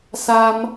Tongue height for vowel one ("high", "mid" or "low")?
low